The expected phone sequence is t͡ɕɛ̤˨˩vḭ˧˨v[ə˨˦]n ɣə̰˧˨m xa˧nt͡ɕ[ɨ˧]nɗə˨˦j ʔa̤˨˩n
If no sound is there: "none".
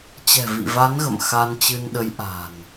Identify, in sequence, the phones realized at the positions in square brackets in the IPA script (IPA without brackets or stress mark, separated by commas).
a˨˦, ɨ˧